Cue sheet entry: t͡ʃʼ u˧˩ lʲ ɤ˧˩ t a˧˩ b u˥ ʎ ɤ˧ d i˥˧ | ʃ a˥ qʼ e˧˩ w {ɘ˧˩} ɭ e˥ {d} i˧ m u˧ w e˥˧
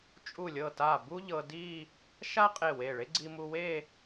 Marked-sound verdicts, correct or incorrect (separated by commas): incorrect, incorrect